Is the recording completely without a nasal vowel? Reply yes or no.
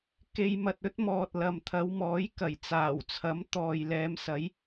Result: yes